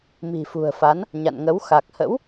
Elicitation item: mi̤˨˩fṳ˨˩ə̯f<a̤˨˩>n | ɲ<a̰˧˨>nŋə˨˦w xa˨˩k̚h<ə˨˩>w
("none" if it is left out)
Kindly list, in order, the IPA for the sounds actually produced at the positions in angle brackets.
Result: a˨˦, a̰˧˨, ə̰˧˥

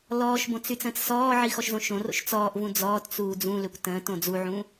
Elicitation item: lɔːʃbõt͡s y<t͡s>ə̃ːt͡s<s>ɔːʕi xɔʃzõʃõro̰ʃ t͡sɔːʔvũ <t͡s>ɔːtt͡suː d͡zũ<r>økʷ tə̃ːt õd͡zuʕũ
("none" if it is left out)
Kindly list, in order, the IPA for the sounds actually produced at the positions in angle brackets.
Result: t͡s, s, d͡z, l

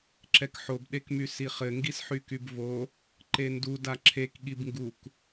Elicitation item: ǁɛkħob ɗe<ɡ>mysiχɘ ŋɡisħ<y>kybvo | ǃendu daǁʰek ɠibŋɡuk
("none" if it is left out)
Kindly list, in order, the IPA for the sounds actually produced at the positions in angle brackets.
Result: k, y

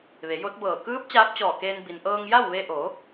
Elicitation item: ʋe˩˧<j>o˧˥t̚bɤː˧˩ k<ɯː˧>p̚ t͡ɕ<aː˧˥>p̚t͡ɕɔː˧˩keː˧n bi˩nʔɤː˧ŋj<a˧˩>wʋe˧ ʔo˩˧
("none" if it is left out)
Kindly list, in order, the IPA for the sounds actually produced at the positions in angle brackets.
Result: j, ɯː˧˥, aː˧˥, a˥˨

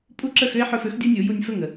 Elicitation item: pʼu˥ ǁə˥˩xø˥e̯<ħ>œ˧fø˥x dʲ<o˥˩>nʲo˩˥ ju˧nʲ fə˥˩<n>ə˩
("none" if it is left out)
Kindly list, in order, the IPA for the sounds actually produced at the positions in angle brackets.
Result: ħ, o˥, ŋ

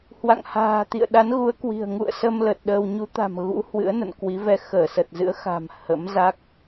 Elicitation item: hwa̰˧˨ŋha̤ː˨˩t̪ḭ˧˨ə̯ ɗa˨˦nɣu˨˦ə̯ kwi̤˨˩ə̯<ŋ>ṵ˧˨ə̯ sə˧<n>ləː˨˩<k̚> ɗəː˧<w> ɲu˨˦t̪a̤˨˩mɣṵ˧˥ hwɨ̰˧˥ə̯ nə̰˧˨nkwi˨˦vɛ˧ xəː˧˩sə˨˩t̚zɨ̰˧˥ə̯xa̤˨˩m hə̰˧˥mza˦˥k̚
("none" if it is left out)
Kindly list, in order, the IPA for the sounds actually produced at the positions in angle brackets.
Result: ŋ, m, t̚, w

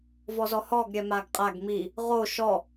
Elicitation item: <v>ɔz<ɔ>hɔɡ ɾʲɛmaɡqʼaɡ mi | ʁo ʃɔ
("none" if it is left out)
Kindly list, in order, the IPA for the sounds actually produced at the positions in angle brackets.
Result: v, ɔ

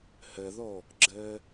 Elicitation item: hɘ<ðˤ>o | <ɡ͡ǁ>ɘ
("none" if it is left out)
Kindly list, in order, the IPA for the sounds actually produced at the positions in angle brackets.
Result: ð, ɡ͡ǁ

